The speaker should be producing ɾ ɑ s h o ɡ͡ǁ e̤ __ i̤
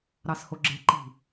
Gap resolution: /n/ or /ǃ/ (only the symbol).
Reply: ǃ